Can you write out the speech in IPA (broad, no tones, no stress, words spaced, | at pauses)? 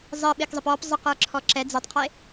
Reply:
zˤiɓɪkzˤəp ɔp zˤəqə˞ǁʰɔ ǁɛ d͡zitˤqʰe